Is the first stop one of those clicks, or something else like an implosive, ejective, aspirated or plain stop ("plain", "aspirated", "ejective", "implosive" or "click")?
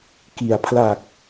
plain